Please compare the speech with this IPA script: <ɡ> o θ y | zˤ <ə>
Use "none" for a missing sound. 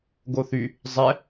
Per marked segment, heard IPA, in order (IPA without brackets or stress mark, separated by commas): ɡ, ɛ